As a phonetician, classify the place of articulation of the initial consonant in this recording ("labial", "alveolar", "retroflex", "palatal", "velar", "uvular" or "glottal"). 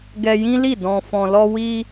velar